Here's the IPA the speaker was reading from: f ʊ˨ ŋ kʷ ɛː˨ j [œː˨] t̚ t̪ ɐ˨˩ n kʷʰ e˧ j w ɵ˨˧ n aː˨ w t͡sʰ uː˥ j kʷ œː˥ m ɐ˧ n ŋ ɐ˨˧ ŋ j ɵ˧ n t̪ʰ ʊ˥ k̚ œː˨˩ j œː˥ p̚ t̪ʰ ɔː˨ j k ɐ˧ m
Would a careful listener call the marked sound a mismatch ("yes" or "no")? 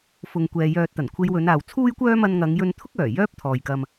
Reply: no